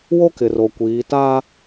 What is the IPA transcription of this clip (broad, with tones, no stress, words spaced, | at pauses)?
wo˦kɪ˨ ro˨kʷiː˨˦ taː˦